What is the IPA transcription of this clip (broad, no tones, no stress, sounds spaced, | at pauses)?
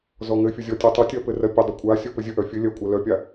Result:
z ɔ ŋ ɘ fʲ ə zʲ ɔ tʲ ɜ tˤ ə tʲ ɜ p ɘ r ɜ pʲ ə dˤ ə kʷʼ a sʲ o p ɘ zʲ ə ʔ œ fʲ ɘ lʲ ɜ kʷʼ ɜ l œ pʲ a